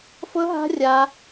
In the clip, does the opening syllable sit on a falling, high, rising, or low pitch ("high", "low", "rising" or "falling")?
high